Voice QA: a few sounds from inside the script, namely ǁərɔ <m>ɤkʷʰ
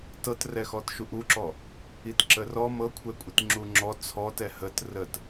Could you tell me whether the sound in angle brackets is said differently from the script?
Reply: no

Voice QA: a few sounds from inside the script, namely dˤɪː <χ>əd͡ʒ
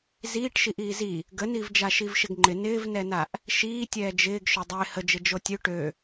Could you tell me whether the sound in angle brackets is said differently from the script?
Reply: yes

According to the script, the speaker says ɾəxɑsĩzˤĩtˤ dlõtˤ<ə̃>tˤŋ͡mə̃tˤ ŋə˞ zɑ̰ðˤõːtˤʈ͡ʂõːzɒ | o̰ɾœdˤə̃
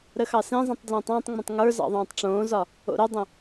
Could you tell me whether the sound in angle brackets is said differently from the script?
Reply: yes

